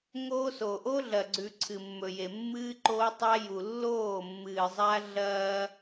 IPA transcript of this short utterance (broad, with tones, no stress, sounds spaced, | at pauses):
ŋ oː˦ s o˨ ʔ o˦ ɮ ɐ˨ ɡ͡ǀ ʉ˨ ǀʰ ɨ˨ mː ɵ˨ j e˨ mː ɨː˦ ǃ oː˦ tˤ a˦ j u˨ lː oː˦˨ mː ɨː˨ zˤ a˦ ɮ ɐː˦